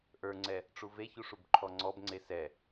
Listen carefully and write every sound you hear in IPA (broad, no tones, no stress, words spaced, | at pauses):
ʔə˞ŋ͡ǀɛ | ʈ͡ʂuveçu ʂubǃʰɔŋ͡ǀɔbŋ͡ǀe sɛ